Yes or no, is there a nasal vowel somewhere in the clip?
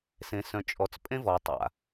yes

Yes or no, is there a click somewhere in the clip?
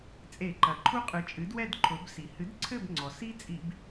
yes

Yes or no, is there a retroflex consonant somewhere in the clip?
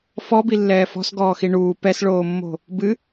yes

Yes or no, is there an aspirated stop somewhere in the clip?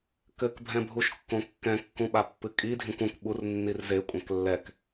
no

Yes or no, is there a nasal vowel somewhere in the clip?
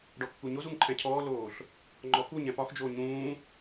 yes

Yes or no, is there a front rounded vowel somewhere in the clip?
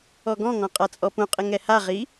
no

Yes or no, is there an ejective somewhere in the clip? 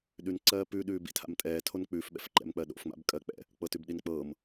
yes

